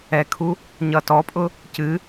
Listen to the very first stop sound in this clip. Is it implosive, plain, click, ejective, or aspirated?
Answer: aspirated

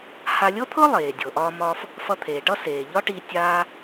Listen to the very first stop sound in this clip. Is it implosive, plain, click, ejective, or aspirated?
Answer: aspirated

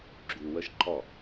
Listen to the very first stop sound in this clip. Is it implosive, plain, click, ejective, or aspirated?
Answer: click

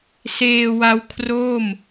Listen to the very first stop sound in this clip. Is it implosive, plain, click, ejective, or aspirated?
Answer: aspirated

